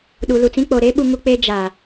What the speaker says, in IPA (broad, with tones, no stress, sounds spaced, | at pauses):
ɗ u˨ l u˨ t͡s ĩ˦ k͡p o˨ ɾ e˦ ɓ u˦ ŋ u˦ k͡p eː˦ d͡ʒ aː˨